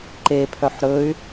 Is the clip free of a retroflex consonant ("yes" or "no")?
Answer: yes